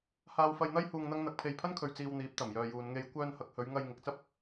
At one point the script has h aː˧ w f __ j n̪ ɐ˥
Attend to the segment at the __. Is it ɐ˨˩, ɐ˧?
ɐ˧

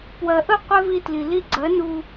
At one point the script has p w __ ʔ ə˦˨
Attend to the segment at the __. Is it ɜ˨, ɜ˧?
ɜ˨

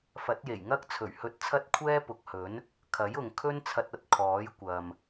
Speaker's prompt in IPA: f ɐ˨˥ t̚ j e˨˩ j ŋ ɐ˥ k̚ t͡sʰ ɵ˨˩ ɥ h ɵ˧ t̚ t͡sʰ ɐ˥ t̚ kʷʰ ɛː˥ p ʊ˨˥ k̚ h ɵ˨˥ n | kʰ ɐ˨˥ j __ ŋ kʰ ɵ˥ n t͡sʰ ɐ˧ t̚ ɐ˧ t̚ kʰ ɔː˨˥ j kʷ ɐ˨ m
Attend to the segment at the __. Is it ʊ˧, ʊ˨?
ʊ˨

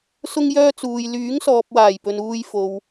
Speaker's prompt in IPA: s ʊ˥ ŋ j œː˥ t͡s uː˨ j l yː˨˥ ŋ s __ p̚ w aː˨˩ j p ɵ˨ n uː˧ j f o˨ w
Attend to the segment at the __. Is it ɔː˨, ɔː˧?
ɔː˨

